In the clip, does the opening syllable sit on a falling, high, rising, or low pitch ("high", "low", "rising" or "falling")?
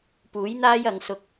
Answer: rising